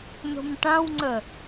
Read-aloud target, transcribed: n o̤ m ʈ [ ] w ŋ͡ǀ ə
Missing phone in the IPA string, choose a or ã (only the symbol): ã